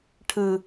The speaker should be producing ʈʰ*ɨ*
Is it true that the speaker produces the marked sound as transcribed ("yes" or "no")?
yes